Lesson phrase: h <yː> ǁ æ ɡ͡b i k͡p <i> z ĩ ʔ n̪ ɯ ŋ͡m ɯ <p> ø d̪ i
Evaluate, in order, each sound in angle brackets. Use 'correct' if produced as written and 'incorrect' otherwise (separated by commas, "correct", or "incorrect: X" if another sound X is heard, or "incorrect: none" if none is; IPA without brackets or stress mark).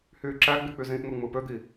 correct, incorrect: y, correct